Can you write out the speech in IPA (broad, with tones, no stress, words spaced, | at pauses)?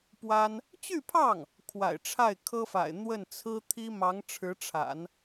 pwa˥n | t͡ɕy˥˧pʰɑ˥˩ŋ | kʰwa̰˨˩ɪ̯ʈ͡ʂʰa˥˩ɪ̯kʰɤ˥fa̰˨˩ɪ̯ n̪wə˥˩nt͡sʰɹ̩˥ t̪ʰi˥mɑ˧˥ŋʈ͡ʂʰɻ̩˧˥ʈ͡ʂʰa̰˨˩˦n